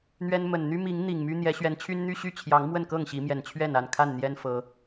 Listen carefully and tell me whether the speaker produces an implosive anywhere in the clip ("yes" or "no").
no